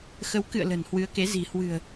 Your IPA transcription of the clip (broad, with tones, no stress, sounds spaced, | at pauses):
x ə˨˦ w k ɨ̰˧˨ ə̯ l ə̤˨˩ n h w ɨ˨˦ ə̯ k e˨˦ z i̤˨˩ h w ɨ̤˨˩ ə̯